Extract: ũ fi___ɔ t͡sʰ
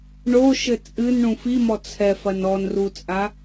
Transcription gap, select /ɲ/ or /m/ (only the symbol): m